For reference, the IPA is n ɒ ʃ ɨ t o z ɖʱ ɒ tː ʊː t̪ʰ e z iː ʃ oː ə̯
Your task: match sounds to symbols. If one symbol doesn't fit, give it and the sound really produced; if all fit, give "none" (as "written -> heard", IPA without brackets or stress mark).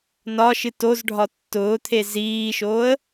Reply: none